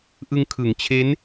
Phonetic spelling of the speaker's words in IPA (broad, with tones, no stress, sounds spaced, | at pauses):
ʔ ɯ˧ ŋ kʰ ɯ˩˦ ŋ t͡ɕʰ e˦˥ n